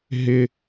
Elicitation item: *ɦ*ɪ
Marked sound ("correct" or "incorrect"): correct